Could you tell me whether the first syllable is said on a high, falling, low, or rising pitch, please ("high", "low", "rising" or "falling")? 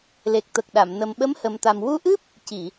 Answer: low